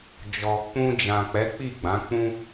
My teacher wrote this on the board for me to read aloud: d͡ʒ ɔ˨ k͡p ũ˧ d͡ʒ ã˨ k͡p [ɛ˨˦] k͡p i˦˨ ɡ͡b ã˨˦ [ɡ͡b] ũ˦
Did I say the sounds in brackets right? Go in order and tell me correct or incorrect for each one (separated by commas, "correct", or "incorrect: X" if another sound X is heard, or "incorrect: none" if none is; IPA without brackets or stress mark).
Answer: correct, incorrect: k͡p